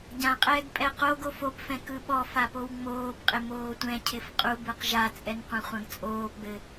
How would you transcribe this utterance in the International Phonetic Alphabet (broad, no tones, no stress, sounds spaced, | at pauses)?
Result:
ɟ ã qʼ ɛː ɡ pʼ ɛ q o ɡ o f o p f ɛ̃ k ɯ ɓ ɔ f a p o w ŋ͡m oː b qʼ ɪ m oː tʷ ɛ̃ cʰ ɪ f qʼ u b ɯ q ʒ a t͡sʼ ɛ n qʷ ã χʷ ã ɡ t͡sʼ oː p ɡ͡b ɘ